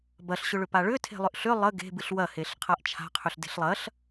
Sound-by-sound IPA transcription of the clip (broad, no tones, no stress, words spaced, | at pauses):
bɐɬɕʏɭʏpa ɭʏ tʰe̤lˠʏʔɬʏ lˠə ɡe̤bɨɬ wɐheɬ qʰaʔt͡ʃʰa̤qʰʏɬ de̤ɬlˠɐɬ